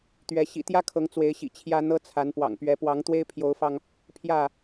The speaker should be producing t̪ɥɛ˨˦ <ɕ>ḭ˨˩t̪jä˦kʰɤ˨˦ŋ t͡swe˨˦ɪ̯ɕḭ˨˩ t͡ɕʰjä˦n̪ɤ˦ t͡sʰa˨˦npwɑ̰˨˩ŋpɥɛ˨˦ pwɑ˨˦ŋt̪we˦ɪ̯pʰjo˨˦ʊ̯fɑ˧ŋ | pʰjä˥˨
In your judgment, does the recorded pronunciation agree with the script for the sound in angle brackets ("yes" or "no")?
yes